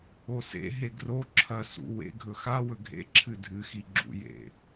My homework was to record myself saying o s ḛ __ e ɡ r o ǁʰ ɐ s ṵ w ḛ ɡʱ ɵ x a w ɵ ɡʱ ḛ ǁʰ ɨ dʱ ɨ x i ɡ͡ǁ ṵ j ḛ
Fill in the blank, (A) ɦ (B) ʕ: A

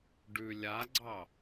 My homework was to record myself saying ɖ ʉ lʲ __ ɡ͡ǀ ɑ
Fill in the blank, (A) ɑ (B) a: B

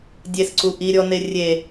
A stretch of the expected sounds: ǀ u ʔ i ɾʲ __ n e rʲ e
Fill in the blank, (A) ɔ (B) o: A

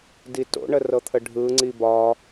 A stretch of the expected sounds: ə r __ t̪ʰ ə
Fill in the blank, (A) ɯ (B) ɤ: B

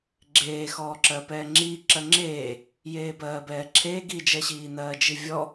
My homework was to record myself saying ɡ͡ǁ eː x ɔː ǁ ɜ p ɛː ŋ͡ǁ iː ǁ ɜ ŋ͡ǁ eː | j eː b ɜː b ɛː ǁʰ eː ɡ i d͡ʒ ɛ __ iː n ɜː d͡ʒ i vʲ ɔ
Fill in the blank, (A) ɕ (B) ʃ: A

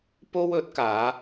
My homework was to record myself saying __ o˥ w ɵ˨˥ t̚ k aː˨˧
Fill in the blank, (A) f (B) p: B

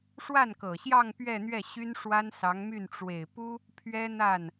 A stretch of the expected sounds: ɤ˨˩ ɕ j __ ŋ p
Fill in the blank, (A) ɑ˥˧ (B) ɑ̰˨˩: A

